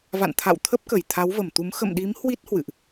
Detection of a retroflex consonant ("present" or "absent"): absent